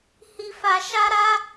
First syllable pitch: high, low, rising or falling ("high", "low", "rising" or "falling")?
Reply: high